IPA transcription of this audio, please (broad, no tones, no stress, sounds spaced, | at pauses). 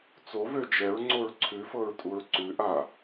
t͡s o v ø d͡ʒ ɛ ɹ ŋ͡ǀ o ɹ ǀʰ ʉ f ɤ ɹ tʼ u ɹ ǀ ʉ ʔ a